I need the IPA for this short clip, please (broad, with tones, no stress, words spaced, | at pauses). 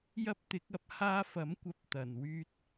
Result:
jɐ˥p̚t̪ɪ˨˥k̚ɐ˨˥p̚ haː˧fɐ˨˥mkʷɐ˨˥p̚ t̪ɐ˨˩n wyː˧t̚